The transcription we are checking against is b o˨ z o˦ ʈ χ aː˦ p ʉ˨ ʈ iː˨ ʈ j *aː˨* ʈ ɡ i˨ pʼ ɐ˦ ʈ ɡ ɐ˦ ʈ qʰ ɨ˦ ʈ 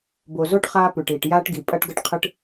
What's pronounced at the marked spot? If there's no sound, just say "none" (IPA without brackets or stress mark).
aː˦